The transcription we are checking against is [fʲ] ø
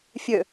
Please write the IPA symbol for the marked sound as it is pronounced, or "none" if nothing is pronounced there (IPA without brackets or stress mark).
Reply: fʲ